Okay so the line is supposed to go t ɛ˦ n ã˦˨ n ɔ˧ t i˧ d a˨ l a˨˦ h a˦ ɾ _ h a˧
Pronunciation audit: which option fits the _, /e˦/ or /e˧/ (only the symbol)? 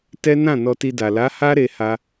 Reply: e˧